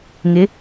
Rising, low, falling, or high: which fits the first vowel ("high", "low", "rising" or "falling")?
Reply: rising